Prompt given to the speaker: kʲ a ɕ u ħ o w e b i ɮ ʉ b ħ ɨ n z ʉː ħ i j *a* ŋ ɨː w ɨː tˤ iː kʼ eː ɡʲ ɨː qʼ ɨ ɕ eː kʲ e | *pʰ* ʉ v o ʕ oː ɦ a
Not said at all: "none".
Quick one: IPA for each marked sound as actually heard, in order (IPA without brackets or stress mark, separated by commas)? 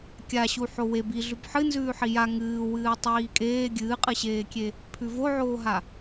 a, pʰ